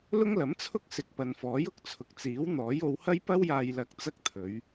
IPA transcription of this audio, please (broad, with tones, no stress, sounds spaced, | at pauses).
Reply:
l ʊ˥ ŋ l ɐ˨˥ m t͡sʰ ʊ˥ k̚ s ɪ˨ k̚ p ɐ˨ n f ɔː˨˥ j ʊ˨˥ k̚ t͡sʰ ʊ˨ k̚ t͡s iː˨˥ w n̪ ɔː˨˥ j o˨˧ w h ɐ˥ j p ɐ˥ w j aː˧ j l ɐ˧ k̚ t͡s ɐ˥ k̚ t̪ʰ ɵ˨˧ ɥ